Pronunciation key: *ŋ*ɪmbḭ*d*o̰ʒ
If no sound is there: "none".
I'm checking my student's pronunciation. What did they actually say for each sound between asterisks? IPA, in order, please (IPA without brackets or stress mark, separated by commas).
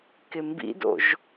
k, d